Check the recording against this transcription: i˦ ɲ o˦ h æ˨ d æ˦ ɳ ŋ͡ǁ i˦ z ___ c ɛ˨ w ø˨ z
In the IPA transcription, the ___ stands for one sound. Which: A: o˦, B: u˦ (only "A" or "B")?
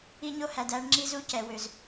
B